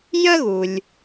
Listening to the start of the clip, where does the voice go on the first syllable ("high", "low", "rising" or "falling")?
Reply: high